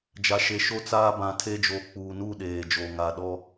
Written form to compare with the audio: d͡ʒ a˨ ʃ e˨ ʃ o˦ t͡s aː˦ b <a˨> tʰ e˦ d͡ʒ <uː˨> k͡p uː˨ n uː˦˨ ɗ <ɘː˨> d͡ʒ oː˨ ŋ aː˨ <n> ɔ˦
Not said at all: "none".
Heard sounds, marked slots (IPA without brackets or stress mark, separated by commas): ã˨, oː˨, eː˨, ɗ